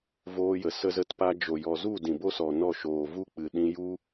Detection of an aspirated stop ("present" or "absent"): absent